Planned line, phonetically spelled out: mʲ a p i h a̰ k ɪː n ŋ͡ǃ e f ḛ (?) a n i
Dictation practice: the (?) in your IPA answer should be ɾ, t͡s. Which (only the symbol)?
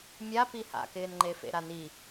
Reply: ɾ